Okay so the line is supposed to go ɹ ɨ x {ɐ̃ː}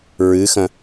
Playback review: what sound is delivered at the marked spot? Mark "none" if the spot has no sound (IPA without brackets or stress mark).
ɐ̃